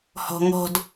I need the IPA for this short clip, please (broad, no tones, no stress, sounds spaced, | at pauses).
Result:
h ɔ̤ ŋ ɔ̤ d